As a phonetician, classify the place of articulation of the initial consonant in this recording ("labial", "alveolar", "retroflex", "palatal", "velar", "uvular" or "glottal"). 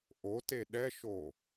glottal